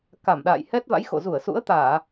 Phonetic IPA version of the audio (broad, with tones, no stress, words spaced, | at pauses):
ka˧˩mɗa̰ː˧˨j hɛ˦˥t̚va̰˧˥jxo̰˧˨ zu˧˩ə̯sṵ˧˥ə̯t̪aː˧˩˨